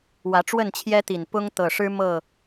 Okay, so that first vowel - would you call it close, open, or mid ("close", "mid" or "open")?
open